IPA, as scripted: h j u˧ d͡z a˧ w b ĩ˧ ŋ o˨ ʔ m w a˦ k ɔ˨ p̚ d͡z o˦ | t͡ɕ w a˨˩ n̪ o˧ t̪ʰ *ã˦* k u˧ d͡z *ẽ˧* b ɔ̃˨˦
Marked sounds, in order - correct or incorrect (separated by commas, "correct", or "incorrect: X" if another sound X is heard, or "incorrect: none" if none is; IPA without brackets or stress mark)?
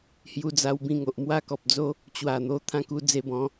correct, incorrect: e˧